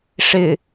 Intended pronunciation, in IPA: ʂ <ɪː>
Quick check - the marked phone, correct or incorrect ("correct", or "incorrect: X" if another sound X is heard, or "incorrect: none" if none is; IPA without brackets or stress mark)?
incorrect: ɪ